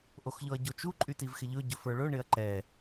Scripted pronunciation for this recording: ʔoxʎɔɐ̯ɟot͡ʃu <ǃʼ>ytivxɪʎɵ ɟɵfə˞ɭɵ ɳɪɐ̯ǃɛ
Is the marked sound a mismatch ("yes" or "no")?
no